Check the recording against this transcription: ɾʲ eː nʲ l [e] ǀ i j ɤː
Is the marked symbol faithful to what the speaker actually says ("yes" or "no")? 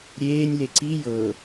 yes